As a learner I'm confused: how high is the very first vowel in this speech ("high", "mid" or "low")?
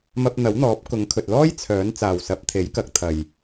low